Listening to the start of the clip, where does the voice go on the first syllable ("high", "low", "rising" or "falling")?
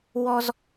high